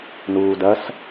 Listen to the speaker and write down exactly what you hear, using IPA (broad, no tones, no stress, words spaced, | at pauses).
nuːdɐs